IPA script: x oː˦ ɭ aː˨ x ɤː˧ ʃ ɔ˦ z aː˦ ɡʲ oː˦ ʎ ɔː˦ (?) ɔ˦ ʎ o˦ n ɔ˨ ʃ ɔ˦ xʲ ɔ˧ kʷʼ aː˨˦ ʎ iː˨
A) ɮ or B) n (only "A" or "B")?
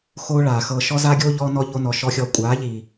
B